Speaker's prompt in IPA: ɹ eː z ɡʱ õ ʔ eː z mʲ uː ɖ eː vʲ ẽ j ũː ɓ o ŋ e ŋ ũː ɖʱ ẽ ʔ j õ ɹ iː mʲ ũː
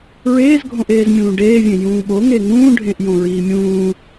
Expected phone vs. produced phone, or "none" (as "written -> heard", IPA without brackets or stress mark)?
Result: uː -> ũː